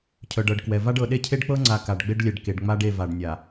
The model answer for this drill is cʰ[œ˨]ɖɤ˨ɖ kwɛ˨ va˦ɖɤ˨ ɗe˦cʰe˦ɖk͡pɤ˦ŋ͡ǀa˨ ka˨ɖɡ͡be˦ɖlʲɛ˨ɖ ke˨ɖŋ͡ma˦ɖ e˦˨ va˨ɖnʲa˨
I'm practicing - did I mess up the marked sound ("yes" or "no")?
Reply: no